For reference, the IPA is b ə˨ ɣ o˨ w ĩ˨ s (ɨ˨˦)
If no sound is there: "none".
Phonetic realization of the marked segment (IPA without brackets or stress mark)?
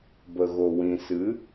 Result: ɨ˨˦